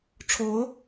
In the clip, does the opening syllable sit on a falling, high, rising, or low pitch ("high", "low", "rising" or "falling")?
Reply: rising